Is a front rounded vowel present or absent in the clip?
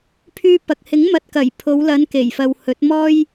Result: present